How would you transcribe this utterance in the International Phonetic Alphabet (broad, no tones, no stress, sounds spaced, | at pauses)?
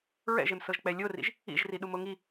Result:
ɹ ɛ̰ ʒ e m s ɤ ʒ k͡p ɛ lʲ o r ḭ ʒ | ḭ ʒ r i ɗ u m o ŋ i